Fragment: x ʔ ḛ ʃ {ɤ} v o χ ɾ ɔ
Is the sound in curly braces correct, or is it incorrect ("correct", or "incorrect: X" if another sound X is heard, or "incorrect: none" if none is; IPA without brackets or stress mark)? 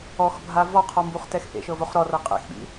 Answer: correct